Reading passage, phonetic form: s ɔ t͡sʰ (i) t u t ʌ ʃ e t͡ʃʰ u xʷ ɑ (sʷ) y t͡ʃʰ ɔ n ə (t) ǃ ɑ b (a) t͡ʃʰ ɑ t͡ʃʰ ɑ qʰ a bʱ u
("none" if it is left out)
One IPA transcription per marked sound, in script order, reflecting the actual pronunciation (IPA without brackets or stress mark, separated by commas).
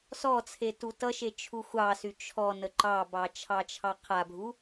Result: e, s, none, ɑ